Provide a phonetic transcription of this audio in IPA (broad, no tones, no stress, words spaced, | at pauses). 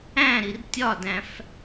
æ̃ɾir tʲɒdæ̃f